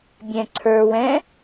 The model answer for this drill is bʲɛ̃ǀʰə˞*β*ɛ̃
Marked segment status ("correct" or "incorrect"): incorrect